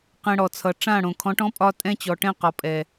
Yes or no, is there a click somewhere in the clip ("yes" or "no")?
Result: no